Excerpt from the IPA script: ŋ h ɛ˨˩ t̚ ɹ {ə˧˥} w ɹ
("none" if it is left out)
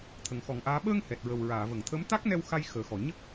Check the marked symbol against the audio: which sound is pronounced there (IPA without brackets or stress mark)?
ə˨˩